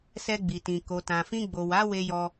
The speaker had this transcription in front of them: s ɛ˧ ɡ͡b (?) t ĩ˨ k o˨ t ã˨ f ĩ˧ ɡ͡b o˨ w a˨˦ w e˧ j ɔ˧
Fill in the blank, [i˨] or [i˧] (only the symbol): i˨